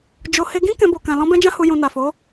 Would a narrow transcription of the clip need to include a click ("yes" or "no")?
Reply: no